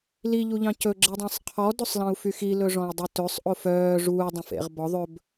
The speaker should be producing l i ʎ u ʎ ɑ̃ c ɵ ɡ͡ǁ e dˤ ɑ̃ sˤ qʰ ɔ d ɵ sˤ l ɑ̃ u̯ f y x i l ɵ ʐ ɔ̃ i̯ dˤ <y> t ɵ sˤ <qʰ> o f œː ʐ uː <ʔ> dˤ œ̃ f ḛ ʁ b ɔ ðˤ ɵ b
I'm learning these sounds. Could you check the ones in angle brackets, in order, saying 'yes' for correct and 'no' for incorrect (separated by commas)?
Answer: yes, no, no